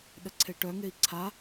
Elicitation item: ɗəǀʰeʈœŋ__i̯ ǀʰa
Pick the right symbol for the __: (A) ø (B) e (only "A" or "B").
B